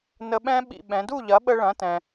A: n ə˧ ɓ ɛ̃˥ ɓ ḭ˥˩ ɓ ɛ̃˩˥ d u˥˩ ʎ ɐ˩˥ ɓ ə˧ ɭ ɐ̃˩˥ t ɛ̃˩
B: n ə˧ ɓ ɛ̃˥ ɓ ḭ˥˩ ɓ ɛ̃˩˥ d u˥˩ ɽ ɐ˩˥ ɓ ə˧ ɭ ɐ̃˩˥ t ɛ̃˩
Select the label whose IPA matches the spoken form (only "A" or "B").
A